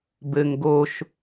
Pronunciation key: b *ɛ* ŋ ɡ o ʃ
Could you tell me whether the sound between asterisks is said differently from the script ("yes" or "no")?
yes